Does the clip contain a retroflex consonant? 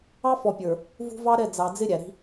no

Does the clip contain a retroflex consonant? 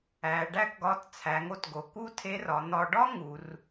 yes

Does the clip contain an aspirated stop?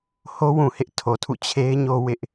yes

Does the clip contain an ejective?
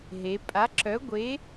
yes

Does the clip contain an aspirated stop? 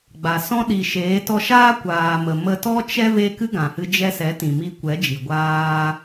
no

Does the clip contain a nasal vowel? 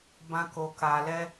yes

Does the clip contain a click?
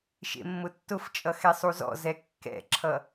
yes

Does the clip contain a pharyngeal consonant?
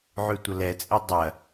yes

